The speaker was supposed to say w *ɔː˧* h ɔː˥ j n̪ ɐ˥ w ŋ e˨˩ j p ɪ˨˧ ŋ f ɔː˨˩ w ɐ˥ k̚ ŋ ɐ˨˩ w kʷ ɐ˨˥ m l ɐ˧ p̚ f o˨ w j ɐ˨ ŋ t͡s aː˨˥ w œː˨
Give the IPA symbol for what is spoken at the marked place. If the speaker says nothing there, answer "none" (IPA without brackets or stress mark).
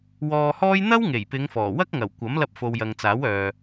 ɔː˧